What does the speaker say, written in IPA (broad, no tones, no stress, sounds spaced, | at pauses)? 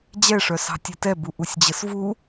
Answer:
d͡ʑ ɛ ʂ œ s ɑ̤ tʲ ɐ t ɛ b u ʔ u sʲ d͡ʑ ə s v u